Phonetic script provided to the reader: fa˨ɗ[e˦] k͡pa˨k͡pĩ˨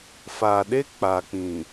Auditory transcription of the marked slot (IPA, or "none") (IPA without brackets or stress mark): e˦